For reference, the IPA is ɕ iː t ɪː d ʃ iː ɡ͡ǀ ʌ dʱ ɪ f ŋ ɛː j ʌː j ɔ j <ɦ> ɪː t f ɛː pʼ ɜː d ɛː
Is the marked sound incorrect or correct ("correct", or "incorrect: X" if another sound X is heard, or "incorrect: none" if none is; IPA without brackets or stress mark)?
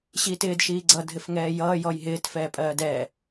correct